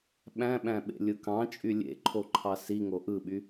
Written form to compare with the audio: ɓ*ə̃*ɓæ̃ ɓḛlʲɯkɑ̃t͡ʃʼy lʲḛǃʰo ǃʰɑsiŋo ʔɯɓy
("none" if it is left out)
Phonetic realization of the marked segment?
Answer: æ̃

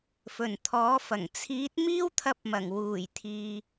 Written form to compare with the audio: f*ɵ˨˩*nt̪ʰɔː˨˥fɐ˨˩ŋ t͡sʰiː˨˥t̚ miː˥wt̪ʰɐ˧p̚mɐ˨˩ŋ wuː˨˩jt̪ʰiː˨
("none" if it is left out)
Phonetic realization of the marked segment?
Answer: ɵ˨˩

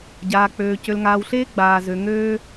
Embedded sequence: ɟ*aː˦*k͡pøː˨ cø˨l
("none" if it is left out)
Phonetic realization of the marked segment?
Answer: aː˨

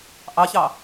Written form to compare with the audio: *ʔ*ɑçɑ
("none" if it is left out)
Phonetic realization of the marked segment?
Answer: ʔ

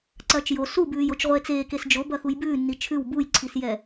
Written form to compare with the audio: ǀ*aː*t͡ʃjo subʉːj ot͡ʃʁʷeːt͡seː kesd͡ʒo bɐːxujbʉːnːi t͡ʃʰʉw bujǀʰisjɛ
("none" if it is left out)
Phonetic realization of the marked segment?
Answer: ɐː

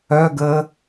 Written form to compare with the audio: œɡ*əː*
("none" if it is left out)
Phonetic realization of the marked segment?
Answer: əː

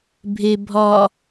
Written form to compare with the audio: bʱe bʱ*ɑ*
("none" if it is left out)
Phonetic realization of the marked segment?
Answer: ɒ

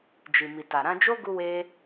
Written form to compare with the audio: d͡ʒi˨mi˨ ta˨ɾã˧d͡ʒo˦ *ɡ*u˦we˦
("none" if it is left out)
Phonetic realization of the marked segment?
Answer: ɡ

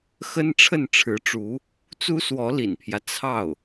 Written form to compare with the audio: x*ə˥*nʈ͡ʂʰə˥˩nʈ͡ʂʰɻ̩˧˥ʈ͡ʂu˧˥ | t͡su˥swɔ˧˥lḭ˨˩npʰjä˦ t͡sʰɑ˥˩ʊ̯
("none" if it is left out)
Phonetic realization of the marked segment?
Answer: ə˥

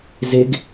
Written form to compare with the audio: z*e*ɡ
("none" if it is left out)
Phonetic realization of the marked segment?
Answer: e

